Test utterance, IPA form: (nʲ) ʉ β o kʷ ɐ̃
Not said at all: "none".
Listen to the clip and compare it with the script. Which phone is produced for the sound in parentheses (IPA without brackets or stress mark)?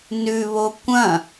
n